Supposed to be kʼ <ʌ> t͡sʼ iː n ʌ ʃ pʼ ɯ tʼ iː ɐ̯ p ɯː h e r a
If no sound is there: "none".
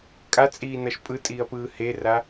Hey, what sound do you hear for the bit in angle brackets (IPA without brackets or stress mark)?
a